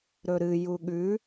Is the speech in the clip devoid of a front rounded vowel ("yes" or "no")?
yes